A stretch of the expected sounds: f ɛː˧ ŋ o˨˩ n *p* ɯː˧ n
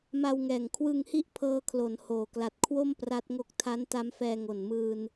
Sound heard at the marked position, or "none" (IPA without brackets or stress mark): m